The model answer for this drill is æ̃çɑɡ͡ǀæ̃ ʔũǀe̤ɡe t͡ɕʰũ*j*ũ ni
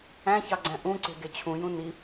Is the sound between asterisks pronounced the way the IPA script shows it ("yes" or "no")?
yes